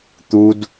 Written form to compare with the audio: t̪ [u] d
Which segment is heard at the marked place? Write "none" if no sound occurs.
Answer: u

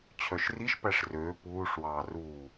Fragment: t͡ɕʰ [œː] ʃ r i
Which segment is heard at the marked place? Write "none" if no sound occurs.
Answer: œ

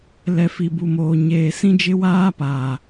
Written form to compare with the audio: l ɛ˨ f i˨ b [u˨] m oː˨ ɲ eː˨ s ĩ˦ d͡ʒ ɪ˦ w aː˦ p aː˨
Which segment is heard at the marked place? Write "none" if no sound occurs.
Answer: u˨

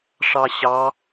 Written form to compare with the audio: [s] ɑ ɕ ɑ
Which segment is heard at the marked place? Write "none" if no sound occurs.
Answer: ʂ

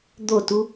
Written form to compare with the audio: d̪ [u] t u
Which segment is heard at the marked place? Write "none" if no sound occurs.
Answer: o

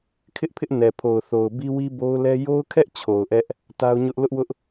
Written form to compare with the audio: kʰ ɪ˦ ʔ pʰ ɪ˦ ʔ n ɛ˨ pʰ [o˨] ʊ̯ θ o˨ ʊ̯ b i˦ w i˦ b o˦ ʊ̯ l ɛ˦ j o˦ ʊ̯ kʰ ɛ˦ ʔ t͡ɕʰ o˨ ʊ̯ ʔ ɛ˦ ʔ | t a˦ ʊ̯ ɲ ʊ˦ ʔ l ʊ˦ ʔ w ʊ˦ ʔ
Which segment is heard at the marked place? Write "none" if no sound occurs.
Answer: o˨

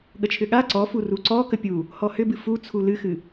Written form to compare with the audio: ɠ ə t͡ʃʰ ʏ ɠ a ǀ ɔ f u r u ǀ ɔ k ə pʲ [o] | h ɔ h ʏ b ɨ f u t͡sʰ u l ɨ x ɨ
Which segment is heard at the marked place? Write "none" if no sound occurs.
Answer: u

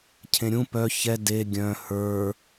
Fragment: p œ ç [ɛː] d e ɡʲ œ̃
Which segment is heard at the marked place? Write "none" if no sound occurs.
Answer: ɛ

